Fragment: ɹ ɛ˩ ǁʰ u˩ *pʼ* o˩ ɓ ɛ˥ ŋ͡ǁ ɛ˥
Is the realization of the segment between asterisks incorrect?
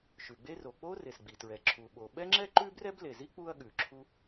yes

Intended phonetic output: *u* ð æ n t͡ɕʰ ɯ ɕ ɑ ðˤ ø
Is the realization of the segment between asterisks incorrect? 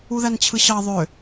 no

